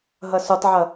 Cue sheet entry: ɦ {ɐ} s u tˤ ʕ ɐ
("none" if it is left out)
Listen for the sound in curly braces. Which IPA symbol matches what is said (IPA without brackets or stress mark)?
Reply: ɐ